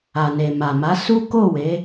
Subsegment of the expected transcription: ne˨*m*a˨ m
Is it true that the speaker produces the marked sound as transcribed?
yes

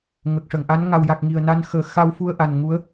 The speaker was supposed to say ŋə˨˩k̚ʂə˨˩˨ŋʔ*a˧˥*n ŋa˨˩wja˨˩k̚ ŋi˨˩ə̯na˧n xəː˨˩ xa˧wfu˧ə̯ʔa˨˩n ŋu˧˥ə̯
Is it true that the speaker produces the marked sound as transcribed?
yes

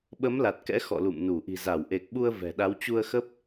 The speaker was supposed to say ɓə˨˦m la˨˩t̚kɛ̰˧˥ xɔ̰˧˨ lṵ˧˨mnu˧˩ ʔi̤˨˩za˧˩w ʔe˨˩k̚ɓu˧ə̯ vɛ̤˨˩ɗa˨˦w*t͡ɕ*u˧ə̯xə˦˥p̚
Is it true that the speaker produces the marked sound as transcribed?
yes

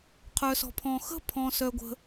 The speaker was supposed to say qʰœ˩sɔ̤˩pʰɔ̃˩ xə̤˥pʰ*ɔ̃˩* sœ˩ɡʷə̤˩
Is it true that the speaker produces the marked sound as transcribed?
yes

